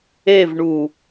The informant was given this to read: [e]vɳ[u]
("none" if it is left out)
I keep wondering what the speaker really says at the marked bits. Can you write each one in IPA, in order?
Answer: e, u

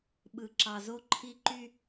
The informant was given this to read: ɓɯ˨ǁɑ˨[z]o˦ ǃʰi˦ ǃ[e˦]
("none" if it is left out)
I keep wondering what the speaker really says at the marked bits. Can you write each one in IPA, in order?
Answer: z, y˦

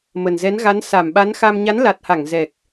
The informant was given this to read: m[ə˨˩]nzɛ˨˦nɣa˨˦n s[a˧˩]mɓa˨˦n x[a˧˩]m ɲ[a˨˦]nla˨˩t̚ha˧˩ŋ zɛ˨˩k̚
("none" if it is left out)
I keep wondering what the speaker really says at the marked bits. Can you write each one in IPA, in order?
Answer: ə˨˩, a˧˩, a˧, a˨˦

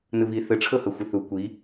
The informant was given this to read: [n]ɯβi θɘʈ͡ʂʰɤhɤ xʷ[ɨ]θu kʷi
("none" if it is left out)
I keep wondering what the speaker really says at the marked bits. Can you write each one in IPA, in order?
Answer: n, ɨ

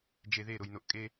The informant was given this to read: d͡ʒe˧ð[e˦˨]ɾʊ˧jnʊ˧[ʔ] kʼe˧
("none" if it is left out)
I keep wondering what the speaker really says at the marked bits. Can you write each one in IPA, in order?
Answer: e˦˨, ʔ

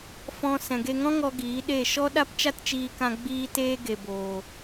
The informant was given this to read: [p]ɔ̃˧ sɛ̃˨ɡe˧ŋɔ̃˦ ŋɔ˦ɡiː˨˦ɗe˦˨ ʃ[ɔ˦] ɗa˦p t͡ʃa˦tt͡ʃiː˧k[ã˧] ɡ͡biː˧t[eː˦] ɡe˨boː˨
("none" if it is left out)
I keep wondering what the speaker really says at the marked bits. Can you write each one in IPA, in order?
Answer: f, ɔ˦, ã˧, eː˧

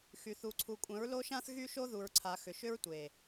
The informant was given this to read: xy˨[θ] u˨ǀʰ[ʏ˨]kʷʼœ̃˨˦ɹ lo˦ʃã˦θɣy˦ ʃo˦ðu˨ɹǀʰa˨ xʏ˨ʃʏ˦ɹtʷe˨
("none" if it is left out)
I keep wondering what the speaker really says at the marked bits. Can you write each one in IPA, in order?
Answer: θ, u˨

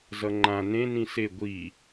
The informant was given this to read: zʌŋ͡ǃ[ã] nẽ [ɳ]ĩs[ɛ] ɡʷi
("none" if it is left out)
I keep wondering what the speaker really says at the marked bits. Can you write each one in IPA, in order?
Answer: ã, n, e

